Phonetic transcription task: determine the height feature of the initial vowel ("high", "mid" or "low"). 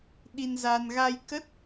high